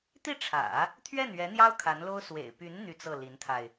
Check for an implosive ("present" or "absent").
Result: absent